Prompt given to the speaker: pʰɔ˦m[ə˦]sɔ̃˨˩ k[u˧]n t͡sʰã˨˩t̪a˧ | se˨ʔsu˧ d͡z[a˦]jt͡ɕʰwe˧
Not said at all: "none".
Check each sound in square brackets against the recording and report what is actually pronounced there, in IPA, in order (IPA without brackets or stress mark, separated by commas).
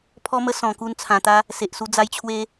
ə˦, u˧, a˧